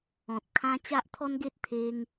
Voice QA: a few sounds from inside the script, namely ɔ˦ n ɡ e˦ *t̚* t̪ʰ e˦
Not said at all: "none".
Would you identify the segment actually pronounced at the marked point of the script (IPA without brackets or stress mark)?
t̚